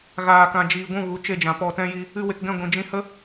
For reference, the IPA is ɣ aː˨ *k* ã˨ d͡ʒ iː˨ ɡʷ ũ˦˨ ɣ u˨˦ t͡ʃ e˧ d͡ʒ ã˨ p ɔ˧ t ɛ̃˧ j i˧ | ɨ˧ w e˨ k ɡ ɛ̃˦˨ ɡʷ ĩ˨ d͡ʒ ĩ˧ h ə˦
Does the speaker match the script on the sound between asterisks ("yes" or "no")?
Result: yes